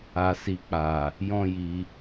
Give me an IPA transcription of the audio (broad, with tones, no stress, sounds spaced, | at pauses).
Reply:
a˨ s i˨ k͡p a˨ | j ɔ̃˦ j i˧